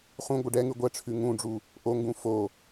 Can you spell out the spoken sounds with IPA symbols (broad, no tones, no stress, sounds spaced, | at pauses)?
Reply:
χ ũ ɡʷ ɪ ɖ ɛ ŋ ʉ ɡʷ ɛ ʈ͡ʂʰ ʉ ŋ ũ ɖ͡ʐ u | ʔ o ŋ ɡ ũ f o